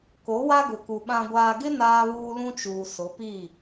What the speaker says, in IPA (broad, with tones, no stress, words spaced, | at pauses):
ko˨˦wa˦ɡʊ˨ku˨ ɓã˨ɡʷaː˨ɡɪ˦ naː˦βuː˦lũ˦t͡ʃuː˨ sʊ˨˦piː˦˨